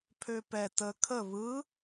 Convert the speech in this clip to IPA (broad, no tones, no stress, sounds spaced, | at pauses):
pʰ ø p ɛ t ə kʰ ə β ɯ